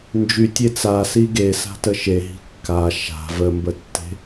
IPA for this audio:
n d͡ʒ y tʲ e t͡s a s i ɡ e s a̤ t ə ʃ e ɦ i̤ kː a ʃ a̤ v ə m b ə tː e̤

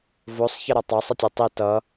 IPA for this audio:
v o sˤ ç ʌ ɾ ʌ tˤ ɑ sˤ ə tʲ o tˤ i t ʌ

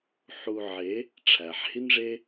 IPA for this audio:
ħ u˧ ʕ e˨˦ | ʈ͡ʂʰ æ˨ ħ h i˦ n ʐ e˦

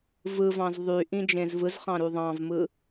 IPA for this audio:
v ɯ v ɑ̃ z ðˤ y ʔ ĩ d͡ʒ ẽ z v ɯ z χ ɑ̃ ɾ u ðˤ ɑ̃ v m ɯ

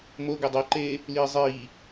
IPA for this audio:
m o ɡ ɘ dˤ o ǃ eː | l iː zˤ iː

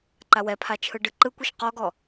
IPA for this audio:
ǃ a w ɛ pʰ a t͡ʃʰ ɯ ɖ ɯ ǃ ɯ kʷ i ʃ q ɔ ɡ ɔ

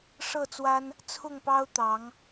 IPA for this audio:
ʂ ɤ˥˨ t͡s w a˦ n | t͡sʰ ʊ˥˨ ŋ p ɑ˦ ʊ̯ t̪ ɑ˨˦ ŋ

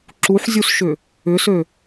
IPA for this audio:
ǁ u ħ zʲ u s ʃ ʏ | ʏ s ø

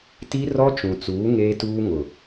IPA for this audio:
t i˦ r ɔ˦ t͡ʃ ũ˨ t͡s uː˨˦ ŋ eː˦ t uː˦ ŋ ʊ˨

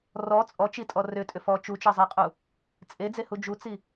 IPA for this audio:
r ɔ t͡sʼ ɔ t͡ʃ i tʼ ɔ r ʏ tʼ ʏ f ɔ t͡ʃ u t͡ʃ ɤ zˤ i qʼ u | t͡sʼ e d͡z e h u d͡ʒ u t͡s i

